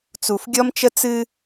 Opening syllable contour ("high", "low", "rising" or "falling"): low